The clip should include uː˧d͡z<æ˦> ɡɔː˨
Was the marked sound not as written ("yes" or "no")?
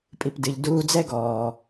yes